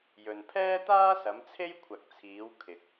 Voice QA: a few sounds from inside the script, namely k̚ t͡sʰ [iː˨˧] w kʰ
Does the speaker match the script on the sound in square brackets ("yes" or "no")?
yes